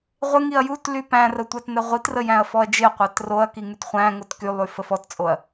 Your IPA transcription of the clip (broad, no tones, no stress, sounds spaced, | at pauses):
ʁʷ ɪ ŋ i ɐ̯ j u t l y p æ̃ r ə tʷ æ t n ɛ ʁʷ i t r ə j æ̃ ɐ̯ f ɔ ɐ̯ d͡ʒ ɪ ɐ̯ qʷ æ t r o ɐ̯ k i ŋ y t χʷ æ̃ ŋ o t k y lˠ y f ə f ɔ t t͡sʼ o ɐ̯